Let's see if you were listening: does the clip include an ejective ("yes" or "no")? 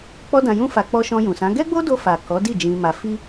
no